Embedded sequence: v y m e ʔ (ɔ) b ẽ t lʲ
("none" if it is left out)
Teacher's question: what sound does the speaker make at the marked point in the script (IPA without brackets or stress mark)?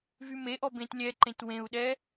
ɔ